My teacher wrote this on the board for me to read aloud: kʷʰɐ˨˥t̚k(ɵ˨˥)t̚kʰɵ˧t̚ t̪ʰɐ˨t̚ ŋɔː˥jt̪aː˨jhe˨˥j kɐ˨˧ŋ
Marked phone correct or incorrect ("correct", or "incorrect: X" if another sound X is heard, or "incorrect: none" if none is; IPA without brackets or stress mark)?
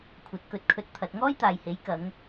correct